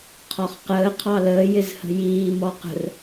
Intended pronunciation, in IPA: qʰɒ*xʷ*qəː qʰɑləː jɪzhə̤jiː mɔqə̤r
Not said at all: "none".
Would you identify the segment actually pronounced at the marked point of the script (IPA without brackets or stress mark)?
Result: χ